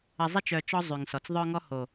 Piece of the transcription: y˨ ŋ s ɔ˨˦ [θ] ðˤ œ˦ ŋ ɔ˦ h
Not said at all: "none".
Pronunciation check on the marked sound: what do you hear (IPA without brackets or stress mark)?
t͡s